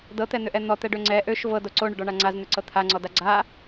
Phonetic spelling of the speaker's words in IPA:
dɤt̪ɛn̪ʏʔɛ n̪ɔt̪ɛɖø ŋ͡ǀɛ ʔøʃ vɤdo ǀoɳøɖɔɳa ŋ͡ǀazn̪ʏǀɤ t̪ʰaŋ͡ǀɔda ɡ͡ǀa

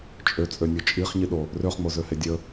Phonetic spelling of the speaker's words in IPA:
t͡ʃʼøt͡sʼønʲo t͡ʃʼiχɲiɗo | røχŋ͡mozøhe dʲə

